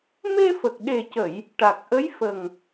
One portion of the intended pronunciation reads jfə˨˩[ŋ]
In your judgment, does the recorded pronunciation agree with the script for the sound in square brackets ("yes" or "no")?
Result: yes